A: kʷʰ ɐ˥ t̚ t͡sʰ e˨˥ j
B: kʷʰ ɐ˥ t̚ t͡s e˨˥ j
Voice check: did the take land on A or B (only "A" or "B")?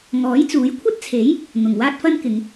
A